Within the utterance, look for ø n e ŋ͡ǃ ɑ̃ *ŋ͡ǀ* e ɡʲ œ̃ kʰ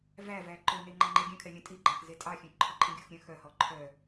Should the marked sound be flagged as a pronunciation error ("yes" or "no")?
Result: yes